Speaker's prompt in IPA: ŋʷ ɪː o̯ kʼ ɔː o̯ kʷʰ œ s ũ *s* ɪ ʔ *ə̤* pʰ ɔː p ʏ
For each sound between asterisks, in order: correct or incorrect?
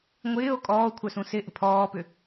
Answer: correct, correct

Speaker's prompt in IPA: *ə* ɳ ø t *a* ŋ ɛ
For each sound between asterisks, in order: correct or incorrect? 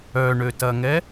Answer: incorrect, incorrect

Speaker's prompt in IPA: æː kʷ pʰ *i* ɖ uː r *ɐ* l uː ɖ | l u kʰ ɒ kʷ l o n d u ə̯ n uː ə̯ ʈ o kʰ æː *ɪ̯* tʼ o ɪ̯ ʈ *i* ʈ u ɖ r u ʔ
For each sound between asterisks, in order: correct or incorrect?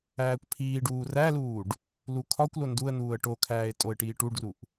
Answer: incorrect, incorrect, correct, incorrect

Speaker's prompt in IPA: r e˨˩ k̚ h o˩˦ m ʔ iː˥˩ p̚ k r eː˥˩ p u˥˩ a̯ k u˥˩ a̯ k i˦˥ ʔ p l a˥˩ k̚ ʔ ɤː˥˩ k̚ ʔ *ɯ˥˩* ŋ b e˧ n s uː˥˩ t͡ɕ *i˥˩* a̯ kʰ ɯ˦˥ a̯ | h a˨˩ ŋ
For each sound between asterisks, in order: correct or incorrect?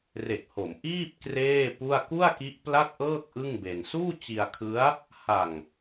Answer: correct, incorrect

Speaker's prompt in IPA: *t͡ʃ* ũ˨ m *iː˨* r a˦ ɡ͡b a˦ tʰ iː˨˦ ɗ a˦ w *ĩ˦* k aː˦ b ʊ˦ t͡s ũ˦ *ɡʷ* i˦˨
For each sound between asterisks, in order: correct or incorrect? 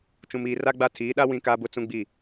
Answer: correct, correct, correct, incorrect

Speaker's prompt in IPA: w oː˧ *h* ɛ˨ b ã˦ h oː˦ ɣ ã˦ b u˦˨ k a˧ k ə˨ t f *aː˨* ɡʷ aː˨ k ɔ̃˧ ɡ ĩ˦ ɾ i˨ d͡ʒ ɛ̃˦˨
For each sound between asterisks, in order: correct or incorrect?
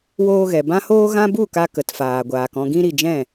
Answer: incorrect, correct

